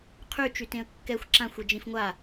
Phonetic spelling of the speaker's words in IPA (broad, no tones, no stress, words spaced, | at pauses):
qʰyt͡ʃytẽə̯ kːɛxʷ ǁãxʷid͡ʒĩf ŋʷa